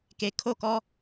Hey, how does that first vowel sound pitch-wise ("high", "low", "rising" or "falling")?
low